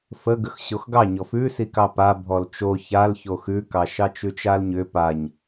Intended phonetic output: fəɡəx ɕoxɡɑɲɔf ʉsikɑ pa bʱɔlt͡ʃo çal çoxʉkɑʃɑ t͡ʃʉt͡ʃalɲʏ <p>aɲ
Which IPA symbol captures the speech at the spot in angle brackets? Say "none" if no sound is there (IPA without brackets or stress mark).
p